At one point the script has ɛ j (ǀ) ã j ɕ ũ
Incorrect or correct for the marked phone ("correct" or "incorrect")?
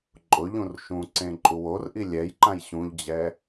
incorrect